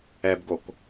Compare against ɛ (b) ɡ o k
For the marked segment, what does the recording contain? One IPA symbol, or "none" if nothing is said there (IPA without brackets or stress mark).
b